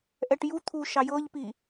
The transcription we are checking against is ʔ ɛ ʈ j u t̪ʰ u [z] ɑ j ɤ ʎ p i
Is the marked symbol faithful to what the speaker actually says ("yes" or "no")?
no